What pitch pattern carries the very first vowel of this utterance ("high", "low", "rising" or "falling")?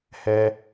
low